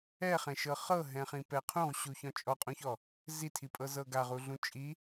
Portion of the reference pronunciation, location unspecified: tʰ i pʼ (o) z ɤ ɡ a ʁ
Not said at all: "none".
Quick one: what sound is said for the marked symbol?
ɤ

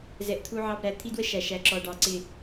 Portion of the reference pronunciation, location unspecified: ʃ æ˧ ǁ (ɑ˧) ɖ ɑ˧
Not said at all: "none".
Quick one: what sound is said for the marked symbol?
ɔ˧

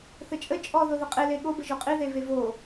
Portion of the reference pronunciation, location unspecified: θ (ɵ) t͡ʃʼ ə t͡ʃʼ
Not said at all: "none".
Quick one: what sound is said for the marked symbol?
ə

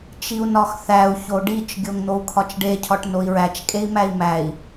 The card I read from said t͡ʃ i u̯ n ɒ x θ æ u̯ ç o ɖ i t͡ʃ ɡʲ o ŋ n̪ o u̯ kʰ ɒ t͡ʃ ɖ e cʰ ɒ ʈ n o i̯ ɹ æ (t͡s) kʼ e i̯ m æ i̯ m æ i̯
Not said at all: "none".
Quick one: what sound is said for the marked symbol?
t͡ʃ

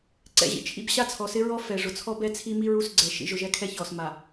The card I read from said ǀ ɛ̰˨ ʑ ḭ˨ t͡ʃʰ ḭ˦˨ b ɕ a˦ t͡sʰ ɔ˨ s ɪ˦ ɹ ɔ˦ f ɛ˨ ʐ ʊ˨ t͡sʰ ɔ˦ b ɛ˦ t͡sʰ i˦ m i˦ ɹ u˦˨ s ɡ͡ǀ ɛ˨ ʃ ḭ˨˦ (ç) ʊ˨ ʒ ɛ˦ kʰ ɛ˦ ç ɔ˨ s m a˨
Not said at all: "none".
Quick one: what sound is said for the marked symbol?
ʒ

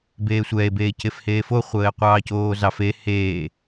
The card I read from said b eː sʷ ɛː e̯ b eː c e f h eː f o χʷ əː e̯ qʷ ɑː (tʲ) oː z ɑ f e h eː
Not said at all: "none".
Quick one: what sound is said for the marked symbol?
c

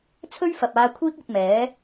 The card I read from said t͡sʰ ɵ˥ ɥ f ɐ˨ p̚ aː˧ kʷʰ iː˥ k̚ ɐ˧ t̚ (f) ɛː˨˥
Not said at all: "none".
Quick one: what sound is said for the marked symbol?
m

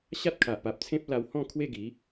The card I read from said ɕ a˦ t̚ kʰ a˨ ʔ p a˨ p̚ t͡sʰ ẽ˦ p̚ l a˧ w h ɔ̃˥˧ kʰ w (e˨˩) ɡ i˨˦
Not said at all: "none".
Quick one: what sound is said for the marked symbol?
e˥˧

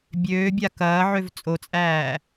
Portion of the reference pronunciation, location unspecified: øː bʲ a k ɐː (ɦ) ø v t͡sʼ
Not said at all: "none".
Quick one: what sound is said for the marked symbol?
ʕ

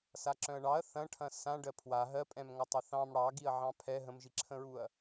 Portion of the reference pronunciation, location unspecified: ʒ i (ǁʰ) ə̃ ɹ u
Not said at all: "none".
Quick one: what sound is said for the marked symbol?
ǁʰ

